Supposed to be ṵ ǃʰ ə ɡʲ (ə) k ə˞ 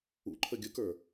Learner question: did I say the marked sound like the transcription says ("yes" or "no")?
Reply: yes